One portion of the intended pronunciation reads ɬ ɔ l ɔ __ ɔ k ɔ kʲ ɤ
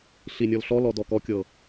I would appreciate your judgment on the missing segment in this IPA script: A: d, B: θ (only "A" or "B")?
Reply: A